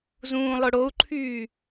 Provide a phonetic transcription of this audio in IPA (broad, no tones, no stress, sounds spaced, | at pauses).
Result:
z ũː lˠ ʊ ɽ o u̯ ǃʰ yː